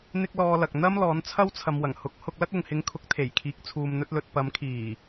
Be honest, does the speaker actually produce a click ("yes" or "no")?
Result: no